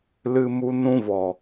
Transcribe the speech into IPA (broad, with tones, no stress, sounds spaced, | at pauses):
l ɨ˦ m u˦ n ũ˦ v ɔ˨